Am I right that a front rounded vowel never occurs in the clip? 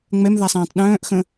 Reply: no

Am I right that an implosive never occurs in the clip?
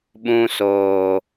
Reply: no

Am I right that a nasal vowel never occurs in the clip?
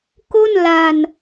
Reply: yes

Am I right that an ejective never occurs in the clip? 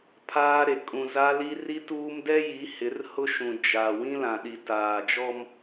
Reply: no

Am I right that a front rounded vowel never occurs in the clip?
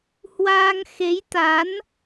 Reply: yes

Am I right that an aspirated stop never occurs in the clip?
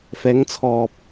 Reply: no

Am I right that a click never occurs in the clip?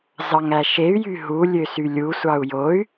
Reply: yes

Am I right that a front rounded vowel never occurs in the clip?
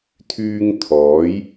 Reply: no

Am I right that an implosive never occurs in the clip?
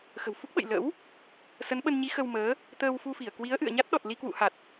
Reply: no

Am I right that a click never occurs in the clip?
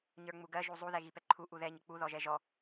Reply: no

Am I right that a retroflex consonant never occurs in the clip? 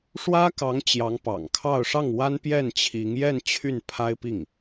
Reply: no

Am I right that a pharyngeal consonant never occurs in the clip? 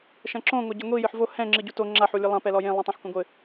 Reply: no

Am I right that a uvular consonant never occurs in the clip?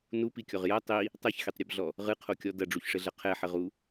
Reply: no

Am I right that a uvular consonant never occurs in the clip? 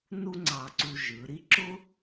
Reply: yes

